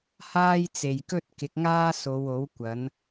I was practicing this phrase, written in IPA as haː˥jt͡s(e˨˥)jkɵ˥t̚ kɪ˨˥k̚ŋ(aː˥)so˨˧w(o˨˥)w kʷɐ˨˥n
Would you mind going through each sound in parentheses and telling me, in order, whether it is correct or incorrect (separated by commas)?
incorrect, correct, correct